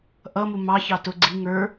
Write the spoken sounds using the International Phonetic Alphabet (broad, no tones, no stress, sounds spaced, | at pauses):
ʔ ʌ m u m ɑ ç ɑ t ʊ ɡ͡ǀ i ŋ ə˞